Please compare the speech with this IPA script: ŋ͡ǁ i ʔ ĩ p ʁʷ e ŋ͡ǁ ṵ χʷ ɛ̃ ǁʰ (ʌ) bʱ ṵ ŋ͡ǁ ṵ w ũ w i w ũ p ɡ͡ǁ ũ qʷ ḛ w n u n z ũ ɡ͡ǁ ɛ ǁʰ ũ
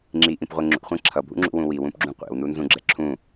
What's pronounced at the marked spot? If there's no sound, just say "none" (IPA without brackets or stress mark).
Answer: ʌ